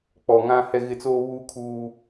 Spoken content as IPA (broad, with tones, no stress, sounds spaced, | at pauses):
k͡p ɔ˨ ŋ ã˦ h ɛ˦ ɣ ɪ˦ t͡s oː˦ β uː˦ kʰ uː˦